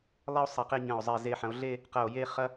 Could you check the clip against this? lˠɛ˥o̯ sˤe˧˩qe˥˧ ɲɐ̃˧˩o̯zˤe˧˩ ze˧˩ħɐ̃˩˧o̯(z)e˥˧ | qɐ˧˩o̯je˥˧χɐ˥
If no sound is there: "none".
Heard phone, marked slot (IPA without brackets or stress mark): ɮ